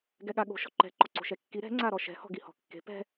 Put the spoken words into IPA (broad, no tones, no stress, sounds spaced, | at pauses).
ɡ ɛ ɠ a ɠ o̤ ʃ ɔ̤ ǃ ɛ̤ ǃ ɔ ǀ o̤ ʃ ɛ kː i ɾ ɛ̤ ŋ͡ǀ a ɾ ɔ ʃ ɛ̤ h ɔ̤ ɡ i h ɔ̤ kː e̤ p ɛ̤